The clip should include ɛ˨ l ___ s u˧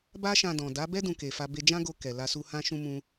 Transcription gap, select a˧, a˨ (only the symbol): a˧